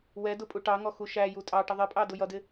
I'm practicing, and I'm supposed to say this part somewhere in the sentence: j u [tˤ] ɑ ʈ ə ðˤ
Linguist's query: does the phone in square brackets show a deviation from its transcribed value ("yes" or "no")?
yes